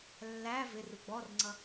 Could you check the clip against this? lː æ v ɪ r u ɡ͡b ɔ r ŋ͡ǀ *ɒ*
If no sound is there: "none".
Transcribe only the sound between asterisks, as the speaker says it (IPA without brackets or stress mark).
ʌ